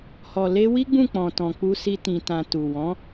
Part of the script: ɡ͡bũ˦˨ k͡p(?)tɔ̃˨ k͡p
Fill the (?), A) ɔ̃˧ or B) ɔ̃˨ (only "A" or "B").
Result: B